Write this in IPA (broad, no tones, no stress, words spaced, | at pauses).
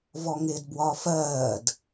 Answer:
vɔŋɪːdbwɒːfɜːd